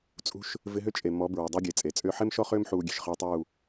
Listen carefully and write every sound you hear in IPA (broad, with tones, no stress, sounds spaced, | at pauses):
t͡sʼ ṳ˧ ʃ | v ɪ˧ ɦ ʏ˦ t͡ʃʼ e˨ m ɔ˨˦ b ɹ ɪ˨ dˤ e˦ ɡʲ e˨ t͡sʼ e˨ t͡sʼ ʏː˦ ħ e˦ m ʃ ɔ˦ χ ʏː˦ m ħ uː˧ ɡʲ e̤˨ ʃ χ ʏː˦ tˤ uː˦˨